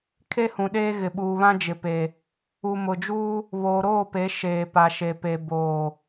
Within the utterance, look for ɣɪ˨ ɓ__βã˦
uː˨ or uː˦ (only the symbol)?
uː˨